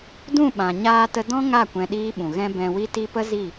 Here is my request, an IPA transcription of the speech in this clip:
d ũ˦˨ ɓ ã˨ ɲ aː˧ t ə˧ d ɔ̃˦ ŋ a˦˨ kʷ ɛ̃˧ ɗ iː˦ ɓ ũ˨ ɣ ɛ̃˦ b ɛ̃˨ w i˧ t i˧ p ə˦ z i˦˨

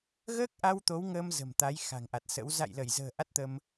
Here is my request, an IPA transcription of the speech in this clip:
ɣ əː˦˥ k̚ ʔ a˧ w t̪ o˨˦ w ŋ əː˧ m z ə̤˨˩ m t̪ a˨˦ j x a̤˨˩ ŋ ʔ a˨˩ t̚ s ə̰˧˥ w z a̰˧˨ j l ə˧˩ j z ə̤ː˨˩ ʔ a˦˥ t̚ t̪ ə˧ m

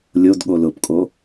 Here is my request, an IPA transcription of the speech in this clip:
lʲ o d ɠ o l ʊ p kʼ o

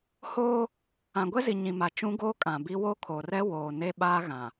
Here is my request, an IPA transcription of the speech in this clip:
h oː˦ | ã˨ ɡʷ ɛ˦ z i˨ ɲ ĩ˨ m a˨ t͡ʃ ũ˦ ɡ oː˦ kʼ ã˨ b i˦ w o˦ kʰ o˨ r ɛ˦ w oː˨ n e˦ ɓ aː˦ ɣ ã˨

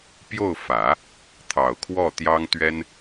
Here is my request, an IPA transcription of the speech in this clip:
p j o˥˩ ʊ̯ f ä˨˩˦ | t̪ʰ ɑ˨˩ ʊ̯ kʰ w ɔ˥˩ t̪ j ɑ˥ ŋ t̪ ɥ ɛ˥ n

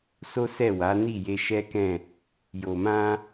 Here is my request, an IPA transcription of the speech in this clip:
s o˦ s ɛ˦˨ w a˨˦ n i˦˨ j e˧ ʃ ɛ˦ k ɛ̃˦˨ | j o˨ m ã˧

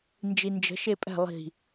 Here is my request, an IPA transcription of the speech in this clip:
n d͡ʒ i n d͡ʒ ə̤ ʃ e pʼ ɛ̤ lˠ i̤

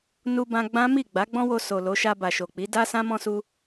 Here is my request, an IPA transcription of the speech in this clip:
n u˧ b ã˧ ɡ͡b ã˦ m i˦˨ ɡ͡b a˨˦ ɡ͡b ɔ̃˦ w o˧ s o˨ l o˨˦ ʃ a˧ b a˨ ʃ o˨ k͡p i˨˦ d a˦ s ã˦ m ɔ̃˧ s u˧

